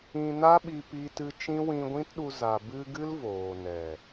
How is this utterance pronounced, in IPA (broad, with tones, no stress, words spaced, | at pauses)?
ĩ˧na˦ɓi˧ pi˦tɨ˦ t͡ʃĩ˦wĩ˧ɡʷĩ˦tɗu˧ za˨bɨ˧ ɡɨ˦lvoː˨nɛ˨